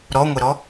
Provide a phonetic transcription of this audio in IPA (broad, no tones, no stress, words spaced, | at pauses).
ɾɔŋʷɛɾɔ